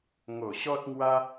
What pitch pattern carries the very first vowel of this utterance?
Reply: low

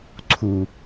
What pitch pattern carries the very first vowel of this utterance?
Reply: low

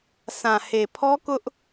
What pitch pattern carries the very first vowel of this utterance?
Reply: low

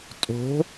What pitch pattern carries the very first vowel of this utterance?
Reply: rising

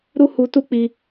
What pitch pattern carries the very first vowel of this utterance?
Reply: high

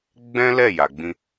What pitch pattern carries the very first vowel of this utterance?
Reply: high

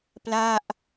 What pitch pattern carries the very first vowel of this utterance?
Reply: falling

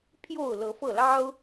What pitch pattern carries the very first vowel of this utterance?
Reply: falling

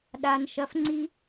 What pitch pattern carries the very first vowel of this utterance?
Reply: high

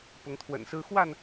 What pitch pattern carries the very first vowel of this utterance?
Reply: rising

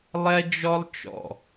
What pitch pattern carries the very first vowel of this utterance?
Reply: high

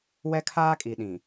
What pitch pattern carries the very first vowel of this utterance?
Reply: high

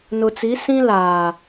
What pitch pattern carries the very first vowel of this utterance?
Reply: low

